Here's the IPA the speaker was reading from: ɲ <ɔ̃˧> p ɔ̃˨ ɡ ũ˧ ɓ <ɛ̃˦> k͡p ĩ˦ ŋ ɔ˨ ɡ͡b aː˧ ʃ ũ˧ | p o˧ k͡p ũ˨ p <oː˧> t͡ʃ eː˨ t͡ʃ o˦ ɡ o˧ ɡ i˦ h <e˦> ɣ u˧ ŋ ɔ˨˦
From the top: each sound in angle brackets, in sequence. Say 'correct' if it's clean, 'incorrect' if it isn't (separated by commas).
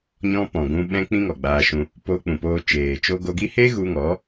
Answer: correct, incorrect, correct, correct